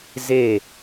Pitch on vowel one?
falling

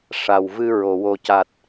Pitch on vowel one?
low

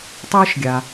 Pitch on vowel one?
high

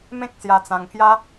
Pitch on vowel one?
high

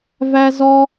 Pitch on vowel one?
high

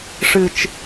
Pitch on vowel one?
low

